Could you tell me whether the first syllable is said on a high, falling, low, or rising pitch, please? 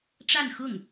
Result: falling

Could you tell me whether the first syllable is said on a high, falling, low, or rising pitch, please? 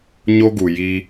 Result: high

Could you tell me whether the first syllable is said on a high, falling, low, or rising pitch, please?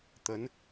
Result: rising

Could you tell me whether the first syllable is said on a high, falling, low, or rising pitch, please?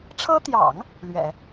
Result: high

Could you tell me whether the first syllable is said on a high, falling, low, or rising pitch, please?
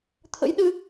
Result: rising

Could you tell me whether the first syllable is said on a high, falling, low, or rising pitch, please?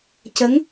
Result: rising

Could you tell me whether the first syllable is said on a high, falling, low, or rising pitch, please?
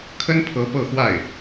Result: high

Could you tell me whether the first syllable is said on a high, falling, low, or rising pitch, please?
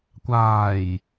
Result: low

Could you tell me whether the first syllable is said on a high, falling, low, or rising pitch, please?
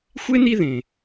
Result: high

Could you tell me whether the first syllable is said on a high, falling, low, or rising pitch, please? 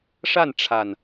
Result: falling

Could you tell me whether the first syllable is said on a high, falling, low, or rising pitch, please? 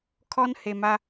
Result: high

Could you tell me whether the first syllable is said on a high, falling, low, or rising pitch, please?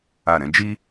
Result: falling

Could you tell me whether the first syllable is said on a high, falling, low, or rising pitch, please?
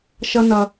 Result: high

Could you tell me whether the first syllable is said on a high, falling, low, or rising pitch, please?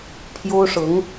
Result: high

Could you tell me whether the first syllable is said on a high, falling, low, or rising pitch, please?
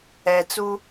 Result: low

